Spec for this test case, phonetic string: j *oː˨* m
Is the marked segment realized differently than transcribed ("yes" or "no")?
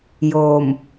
no